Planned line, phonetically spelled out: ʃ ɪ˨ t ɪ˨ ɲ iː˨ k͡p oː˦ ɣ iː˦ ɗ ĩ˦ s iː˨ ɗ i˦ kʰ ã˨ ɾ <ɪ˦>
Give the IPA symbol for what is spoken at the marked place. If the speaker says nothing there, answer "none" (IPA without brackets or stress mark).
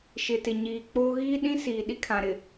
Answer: ɪ˨